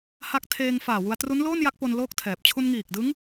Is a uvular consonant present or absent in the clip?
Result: absent